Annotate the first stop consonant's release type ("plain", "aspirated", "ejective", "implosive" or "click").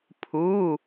aspirated